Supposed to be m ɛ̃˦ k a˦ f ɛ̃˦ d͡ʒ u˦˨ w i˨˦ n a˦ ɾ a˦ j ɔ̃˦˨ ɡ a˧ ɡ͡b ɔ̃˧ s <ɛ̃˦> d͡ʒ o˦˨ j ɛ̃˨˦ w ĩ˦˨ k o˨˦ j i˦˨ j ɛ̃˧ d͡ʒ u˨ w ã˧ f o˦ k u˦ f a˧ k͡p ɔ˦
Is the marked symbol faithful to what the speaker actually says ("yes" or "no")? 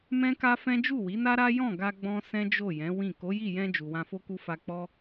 yes